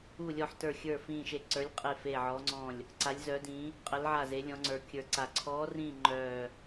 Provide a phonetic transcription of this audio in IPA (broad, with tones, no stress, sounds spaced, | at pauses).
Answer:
u˦˨ lʲ ɔ˦˨ ħ t ə˞˦˨ xʲ ə˞˦˨ f ĩː˦˨ ʃ e˦˨ ǀ ə˞˧˥ lʲ qʼ e˦˨ f e˦˨ ʕ ɔ˧˥ ŋ͡ǀ ɔ̃˦˨ lʲ | ǀ a˧˥ lʲ z œ˧˥ d ĩ˧˥ | qʼ ə˧˥ l ʕ a˦˨ z e˧˥ lʲ ɔ̃˧˥ ŋ͡ǀ ə˞˧˥ kʲ ə˞˧˥ ǀ a˦˨ ǀʰ ɔː˧˥ r ĩː˦˨ ŋ͡ǃ œː˦˨